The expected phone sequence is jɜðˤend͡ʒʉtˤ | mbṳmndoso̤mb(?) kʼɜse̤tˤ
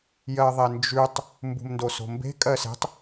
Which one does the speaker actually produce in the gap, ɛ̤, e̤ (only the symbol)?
e̤